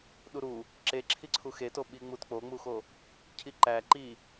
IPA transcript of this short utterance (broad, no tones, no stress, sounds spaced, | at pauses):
ɗ u ɾ u | ǁ e ǁʰ i ǀʰ u x e t o ɓ i ŋ͡m u t k͡p o ŋ͡m u x o | cʰ i ǃ æ ǃ i